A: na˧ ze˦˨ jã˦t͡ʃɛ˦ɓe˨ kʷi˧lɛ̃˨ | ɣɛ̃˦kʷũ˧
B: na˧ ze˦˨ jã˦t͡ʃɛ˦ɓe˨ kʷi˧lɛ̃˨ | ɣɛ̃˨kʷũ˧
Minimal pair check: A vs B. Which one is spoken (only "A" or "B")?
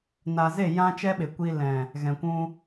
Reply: B